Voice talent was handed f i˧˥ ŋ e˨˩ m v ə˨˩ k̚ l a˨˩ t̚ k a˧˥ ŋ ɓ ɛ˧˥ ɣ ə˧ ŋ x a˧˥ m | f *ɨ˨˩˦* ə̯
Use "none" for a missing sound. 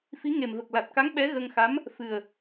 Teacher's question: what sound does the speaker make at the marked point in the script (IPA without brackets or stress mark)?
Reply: ɨ˨˩